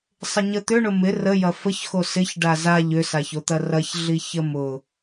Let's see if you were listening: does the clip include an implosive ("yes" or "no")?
no